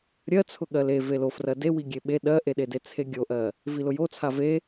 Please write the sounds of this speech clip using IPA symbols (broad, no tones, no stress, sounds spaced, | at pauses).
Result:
ɾʲ ɜ t͡sʰ ʊ ɠ ɜ l e v e l o f r ɜ d e w i ɡʲ e ɓ e ɗ ɜ ʔ e ɗ e d e t͡sʰ e ɡʲ o ʔ ɜ | v i l ʊ j o t͡sʰ a v e